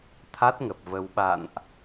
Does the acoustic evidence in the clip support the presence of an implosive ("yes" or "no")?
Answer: yes